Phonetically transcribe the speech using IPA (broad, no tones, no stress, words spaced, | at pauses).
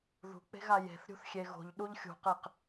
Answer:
ðṳk͡pe̤ɣa je̤θɾʲṳθxʲe ɣo̤ʎɗuʎ xʲṳqeq